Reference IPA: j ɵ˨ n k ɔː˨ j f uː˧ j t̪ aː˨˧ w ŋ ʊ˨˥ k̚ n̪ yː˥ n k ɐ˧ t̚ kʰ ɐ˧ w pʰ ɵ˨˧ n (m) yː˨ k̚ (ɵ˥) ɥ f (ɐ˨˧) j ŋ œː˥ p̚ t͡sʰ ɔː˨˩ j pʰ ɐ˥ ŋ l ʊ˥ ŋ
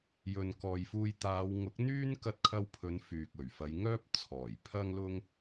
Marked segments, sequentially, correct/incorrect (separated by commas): incorrect, incorrect, correct